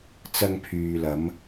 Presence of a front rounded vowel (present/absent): present